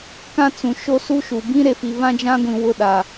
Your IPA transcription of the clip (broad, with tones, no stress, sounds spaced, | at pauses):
k ã˦ t͡s ũ˨ ʃ o˦ s u˦ ʃ u˨ b ĩ˦ ɾ e˨ f i˨ β ã˦ d͡ʒ ã˦ ɡʷ ĩ˨ w ʊ˦˨ ɗ a˨